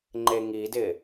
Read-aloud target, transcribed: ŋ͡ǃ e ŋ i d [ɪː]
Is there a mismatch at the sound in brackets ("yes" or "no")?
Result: no